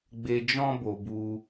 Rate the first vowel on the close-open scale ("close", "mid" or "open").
mid